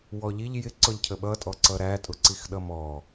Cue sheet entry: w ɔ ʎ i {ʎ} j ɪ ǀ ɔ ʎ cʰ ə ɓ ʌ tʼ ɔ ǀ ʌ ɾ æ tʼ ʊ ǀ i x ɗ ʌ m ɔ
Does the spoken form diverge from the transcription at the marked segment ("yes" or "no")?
no